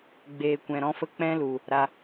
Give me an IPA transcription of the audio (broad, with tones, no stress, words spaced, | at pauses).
ɡ͡beː˨ kʷɛ̃˨ɾɔ̃˦fə˦ k͡pɛ̃˦lu˨ | ɾa˧